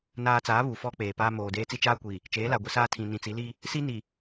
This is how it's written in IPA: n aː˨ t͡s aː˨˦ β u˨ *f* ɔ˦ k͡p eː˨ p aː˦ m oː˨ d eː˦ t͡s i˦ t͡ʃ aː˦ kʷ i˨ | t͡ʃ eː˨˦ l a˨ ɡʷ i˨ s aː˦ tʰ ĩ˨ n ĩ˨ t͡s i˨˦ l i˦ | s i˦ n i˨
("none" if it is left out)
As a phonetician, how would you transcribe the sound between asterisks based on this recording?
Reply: f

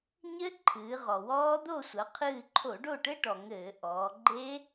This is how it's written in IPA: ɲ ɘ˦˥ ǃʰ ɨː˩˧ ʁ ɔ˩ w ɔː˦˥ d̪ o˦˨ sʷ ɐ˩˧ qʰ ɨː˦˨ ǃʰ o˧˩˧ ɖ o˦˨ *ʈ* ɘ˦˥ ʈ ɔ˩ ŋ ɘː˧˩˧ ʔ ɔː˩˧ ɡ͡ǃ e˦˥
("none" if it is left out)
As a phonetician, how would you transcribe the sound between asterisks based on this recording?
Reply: ʈ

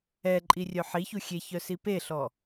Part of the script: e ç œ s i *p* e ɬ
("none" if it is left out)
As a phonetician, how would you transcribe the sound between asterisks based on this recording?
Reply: p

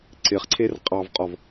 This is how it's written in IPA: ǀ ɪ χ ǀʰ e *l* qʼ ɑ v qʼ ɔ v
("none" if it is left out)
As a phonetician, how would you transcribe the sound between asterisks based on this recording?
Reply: r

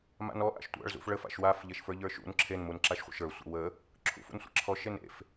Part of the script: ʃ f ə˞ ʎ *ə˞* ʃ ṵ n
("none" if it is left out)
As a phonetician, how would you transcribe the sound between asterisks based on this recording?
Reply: ə˞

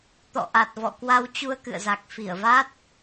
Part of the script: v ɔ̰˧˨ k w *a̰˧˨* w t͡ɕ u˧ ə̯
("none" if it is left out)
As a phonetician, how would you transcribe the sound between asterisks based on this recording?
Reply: a˧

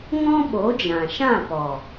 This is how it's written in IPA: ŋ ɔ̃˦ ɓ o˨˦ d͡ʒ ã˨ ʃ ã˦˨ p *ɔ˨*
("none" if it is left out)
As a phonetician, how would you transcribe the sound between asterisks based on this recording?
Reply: ɔ˨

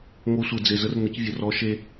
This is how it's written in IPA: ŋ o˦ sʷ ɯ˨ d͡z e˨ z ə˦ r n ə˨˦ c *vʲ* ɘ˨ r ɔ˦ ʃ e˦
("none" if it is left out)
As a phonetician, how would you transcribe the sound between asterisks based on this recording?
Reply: vʲ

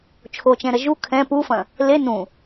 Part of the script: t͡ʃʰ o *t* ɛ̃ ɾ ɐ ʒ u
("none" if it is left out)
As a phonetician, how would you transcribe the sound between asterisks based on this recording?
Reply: t͡ʃ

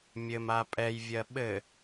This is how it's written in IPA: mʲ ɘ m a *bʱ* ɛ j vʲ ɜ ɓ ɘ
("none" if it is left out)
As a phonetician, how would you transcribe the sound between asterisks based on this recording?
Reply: pʼ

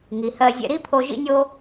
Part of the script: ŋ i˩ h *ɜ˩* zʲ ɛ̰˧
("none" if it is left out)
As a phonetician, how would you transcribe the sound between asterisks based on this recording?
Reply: ɜ˧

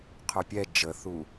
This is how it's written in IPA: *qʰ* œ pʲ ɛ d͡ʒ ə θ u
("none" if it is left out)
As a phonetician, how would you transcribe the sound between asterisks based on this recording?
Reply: qʰ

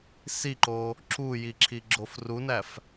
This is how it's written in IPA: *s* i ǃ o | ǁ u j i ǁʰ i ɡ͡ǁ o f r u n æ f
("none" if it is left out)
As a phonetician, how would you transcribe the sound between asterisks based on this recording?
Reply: s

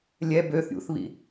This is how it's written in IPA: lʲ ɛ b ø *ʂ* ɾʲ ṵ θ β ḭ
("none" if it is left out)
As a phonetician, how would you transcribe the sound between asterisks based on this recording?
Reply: θ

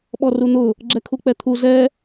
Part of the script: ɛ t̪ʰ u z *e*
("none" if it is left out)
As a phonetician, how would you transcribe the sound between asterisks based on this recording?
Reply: ɛ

